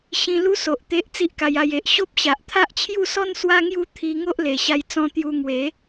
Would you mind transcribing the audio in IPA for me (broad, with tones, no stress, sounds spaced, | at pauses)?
ɕ ĩ˧ l u˦ s o˨ ʔ t̪ e˦ ʔ t͡s i˦ ʔ k a˧ j a˧ j e˨ ʔ ɕ o˦ p̚ ɕ a˨ ʔ t̪ʰ a˦ ʔ t͡ɕʰ j u˥˧ s ɔ˦ n s w a˦ ŋ j u˦ t̪ʰ i˧ ŋ o˦ ʔ l e˨˩ ɕ a˧ j t͡s ɔ̃˦ t̪ j u˧ ŋ w e˨˦